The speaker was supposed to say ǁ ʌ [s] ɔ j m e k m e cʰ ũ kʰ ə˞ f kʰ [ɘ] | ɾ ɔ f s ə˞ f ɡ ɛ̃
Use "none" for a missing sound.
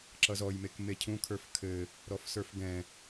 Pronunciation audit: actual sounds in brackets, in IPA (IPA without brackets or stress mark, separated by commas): z, ɘ